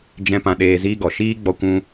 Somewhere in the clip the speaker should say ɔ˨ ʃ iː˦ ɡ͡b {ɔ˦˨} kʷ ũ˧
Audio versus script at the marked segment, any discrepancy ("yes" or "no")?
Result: yes